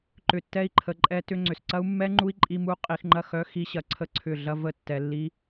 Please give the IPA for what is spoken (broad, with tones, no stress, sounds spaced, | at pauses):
ǃ ʏ˧ tː ɛ˦ i̯ ǃʰ ə˧ ǃʼ ɛ˧ t ʏ˧ ŋ͡ǀ ʏ˨ s ǀ ɐ˦ u̯ mː ɛ˦ ŋ͡ǃ u˦ i̯ ǃʼ i˦ m u˦ qʼ i˧ x ŋ͡ǃ ɐ˦˨ x œ˦ x i˦ ɕ ɐ˦ ǀʰ ə˦ ǀʰ ʏ˦˨ ɮ ɐ˦ v ə˦˨ tː ɛ˧ lː i˦